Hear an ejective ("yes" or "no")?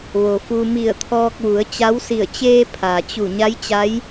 no